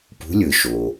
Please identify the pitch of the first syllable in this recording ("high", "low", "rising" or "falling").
rising